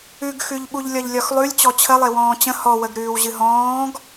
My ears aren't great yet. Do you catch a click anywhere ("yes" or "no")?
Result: no